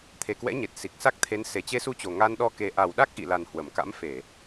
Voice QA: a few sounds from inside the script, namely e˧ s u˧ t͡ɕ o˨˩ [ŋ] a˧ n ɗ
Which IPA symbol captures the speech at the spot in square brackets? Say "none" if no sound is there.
ŋ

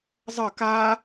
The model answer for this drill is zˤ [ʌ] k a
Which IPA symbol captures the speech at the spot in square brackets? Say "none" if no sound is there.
ʌ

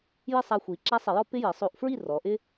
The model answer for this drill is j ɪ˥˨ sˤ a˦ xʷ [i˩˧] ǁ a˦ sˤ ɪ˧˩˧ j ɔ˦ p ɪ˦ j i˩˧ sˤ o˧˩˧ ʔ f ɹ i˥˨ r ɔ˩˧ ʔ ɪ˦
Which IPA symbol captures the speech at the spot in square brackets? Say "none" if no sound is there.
i˩˧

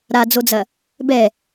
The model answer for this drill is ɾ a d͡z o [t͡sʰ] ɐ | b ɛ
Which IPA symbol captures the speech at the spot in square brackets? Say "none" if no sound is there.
d͡z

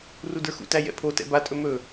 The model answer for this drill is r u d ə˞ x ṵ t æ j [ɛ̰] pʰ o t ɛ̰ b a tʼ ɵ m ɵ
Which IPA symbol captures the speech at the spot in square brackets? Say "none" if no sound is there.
ɛ̰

